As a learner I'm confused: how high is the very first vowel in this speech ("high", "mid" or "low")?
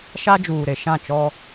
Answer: low